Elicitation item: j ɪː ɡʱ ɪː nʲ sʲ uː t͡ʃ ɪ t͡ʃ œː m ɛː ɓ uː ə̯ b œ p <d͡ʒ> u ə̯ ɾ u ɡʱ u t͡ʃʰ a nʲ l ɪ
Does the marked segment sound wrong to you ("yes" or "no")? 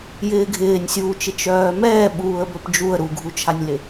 no